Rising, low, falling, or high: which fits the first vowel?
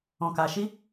low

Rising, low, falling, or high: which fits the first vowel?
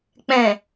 low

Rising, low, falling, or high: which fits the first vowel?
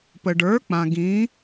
low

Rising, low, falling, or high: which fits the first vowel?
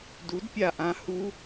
rising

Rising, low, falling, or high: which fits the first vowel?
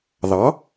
rising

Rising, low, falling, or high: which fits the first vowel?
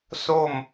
falling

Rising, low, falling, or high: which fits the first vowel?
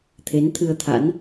rising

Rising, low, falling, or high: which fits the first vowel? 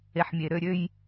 low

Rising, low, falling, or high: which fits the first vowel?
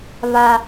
high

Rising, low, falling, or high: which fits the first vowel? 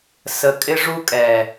low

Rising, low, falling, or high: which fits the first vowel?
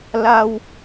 low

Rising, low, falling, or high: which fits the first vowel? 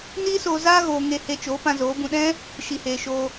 high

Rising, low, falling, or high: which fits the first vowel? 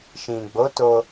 low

